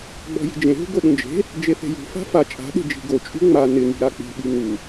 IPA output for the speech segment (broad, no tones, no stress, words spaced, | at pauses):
ɡ͡bɔ̤ji̤d͡ʒẽɦṳ ɡoɗũd͡ʒe̤ | d͡ʒeθe̤jṳ fa̤fa t͡ʃʼa̤ɗe̤ d͡ʒi̤ɡo t͡ʃʼṳŋ͡ma nɪŋi̤ ɾak͡pi̤ɓi ŋu